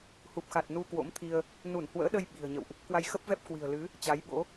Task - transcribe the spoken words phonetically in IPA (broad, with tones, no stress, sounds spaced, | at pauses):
h u˨˩ p̚ x a˨˩ t̚ n u˧ k w o̰˧˥ m t̪ʰ i˧ ə̯ | n u˧˩ n h w ə̰ː˧˥ ɗ ə˧ j ɓ i̤˨˩ ə̯ ɲ ə̰˧˨ w ʔ | k w a˧ j x ə˦˥ p̚ v ɛ˦˥ p̚ k w i̤˨˩ ə̯ l ɨ˨˦ | t͡ɕ a˨˦ j ɓ o̰˧˥